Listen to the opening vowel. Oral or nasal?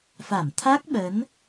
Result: oral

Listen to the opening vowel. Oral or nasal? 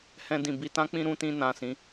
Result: nasal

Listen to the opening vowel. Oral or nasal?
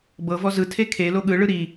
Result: oral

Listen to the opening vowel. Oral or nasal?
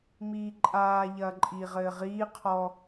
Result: oral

